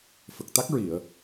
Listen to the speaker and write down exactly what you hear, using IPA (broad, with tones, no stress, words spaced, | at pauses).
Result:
fə˨˩k̚t̪a˦˥k̚ɹi˨˩˨ə̯